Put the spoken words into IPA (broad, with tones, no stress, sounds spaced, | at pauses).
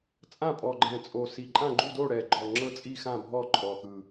t͡sʼ ã˥˨ pʼ ɔ˨˩ ɡ͡ǃ ɛ̃˨˩ t͡sʼ o˨˩ s i˨˩ ǃʼ ã˥˨ ɡ͡ǃ u˥˨ d o˥˨ ɽ ɛ˨˩ ɡ͡ǃ ɔ˨˩ ŋ͡ǁ ɤ˥˨ t͡sʼ i˥˨ x ã˥˨ bʱ ɔ˥˨ ǃʼ ɔ˨˩ x ɯ˨˩